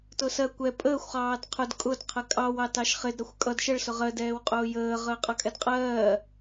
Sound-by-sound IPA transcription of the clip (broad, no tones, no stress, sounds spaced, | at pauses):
t ʊː s ɜ kʷ ɛ pʼ əː xʷ χ ɑː d qʰ ʊ d kʼ ʊ d qʰ ɜ kʼ ɑ w ɑ t ɑ ʃ χ ɪ d ɾ ʌ xʷ kʼ ʌ d ʃ ə ɭ s ʊ ʁ ɜ d ɛː w qʼ ʊː j əː ʁ əː qʼ ʌ kʼ ɛ d qʼ ɜː